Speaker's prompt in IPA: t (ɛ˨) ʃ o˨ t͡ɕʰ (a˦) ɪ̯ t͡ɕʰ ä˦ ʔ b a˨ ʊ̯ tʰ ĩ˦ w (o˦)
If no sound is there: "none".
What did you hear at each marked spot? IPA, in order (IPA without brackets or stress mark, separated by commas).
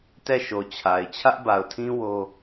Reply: ɛ˦˨, a˨, o˦